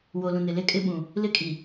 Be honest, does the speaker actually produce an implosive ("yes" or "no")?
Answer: yes